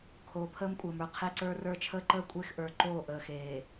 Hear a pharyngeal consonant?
no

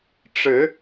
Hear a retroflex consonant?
yes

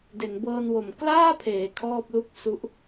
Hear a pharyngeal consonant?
no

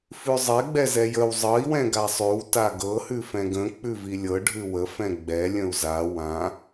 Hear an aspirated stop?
no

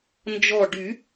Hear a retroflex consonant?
yes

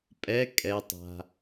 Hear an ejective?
yes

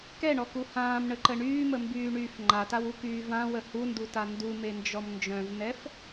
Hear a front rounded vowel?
yes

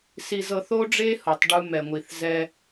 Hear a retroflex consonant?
yes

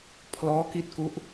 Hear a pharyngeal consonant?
no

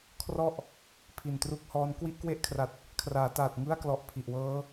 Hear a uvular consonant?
no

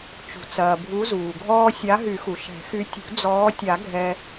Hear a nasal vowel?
no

